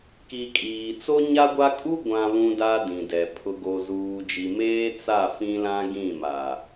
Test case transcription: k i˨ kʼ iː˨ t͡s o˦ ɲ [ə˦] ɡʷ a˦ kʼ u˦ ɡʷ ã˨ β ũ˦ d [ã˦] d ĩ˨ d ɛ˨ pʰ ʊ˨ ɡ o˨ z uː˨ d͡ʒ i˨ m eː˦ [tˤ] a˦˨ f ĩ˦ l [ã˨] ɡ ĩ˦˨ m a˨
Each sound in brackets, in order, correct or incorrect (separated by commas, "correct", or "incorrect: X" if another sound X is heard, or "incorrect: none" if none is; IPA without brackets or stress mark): incorrect: a˦, incorrect: a˦, incorrect: t͡s, incorrect: ã˦